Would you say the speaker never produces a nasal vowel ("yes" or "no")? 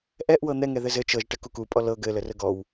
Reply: yes